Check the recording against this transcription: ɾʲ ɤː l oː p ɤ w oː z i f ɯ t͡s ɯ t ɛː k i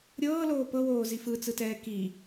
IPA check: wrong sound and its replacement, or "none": none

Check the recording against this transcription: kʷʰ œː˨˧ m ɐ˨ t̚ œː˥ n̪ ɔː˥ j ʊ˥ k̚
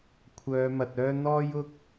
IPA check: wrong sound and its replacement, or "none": none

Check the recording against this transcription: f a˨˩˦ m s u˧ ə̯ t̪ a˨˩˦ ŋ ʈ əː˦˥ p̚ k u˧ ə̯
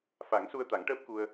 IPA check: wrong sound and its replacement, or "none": m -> ŋ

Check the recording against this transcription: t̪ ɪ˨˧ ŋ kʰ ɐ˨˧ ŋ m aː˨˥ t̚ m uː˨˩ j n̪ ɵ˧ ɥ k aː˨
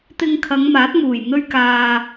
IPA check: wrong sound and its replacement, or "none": ɪ˨˧ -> ɪ˧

